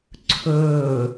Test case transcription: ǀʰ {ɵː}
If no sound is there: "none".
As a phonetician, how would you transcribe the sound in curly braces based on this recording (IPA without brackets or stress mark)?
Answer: ɵː